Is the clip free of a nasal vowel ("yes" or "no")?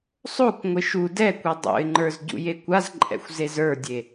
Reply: yes